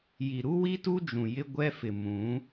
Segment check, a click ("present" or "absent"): absent